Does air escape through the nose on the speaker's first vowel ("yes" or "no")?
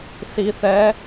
no